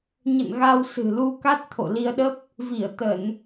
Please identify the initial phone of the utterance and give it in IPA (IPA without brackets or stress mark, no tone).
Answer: ɲ